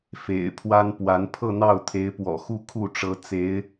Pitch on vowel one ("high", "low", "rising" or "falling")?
low